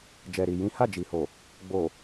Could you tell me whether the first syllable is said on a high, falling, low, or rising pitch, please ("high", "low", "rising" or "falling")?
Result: low